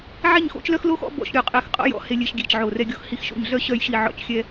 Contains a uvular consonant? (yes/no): yes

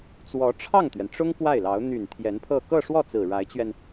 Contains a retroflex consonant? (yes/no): yes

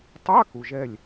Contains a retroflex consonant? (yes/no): no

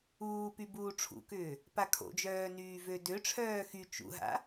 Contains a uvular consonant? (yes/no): no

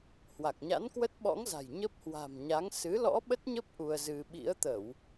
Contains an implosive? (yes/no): yes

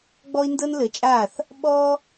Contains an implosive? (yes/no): yes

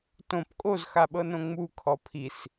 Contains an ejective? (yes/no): yes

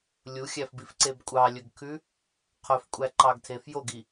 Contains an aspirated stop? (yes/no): yes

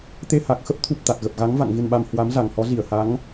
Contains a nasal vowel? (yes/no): no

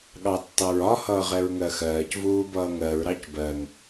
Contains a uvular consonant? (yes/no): yes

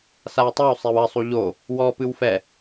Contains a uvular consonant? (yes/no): no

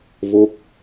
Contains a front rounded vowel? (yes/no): no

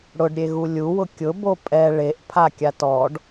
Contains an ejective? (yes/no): yes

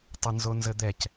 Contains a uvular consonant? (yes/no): no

